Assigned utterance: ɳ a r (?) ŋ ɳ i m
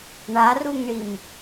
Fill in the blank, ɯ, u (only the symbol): u